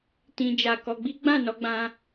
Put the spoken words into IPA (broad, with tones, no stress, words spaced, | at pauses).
tĩ˧d͡ʒa˧ kɔ˧ɡ͡bi˦ ɡ͡bã˦˨nɔ˧ɡ͡bã˧